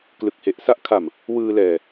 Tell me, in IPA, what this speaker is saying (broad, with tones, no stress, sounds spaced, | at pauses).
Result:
k l ɯ˨˩ k̚ h e˨˩ ʔ s a˥˩ ʔ kʰ a˨˩ m | w ɯː˧ l ɛː˨˩